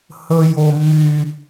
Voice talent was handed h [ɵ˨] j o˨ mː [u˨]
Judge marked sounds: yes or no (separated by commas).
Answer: yes, no